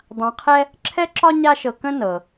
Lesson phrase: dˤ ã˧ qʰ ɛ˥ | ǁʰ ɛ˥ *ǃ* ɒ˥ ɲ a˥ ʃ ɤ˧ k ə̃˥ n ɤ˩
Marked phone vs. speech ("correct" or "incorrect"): incorrect